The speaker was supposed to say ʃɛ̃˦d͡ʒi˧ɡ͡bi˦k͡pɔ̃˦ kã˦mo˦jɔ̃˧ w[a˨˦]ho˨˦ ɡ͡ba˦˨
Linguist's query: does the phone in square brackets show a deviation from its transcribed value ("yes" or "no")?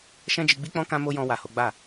yes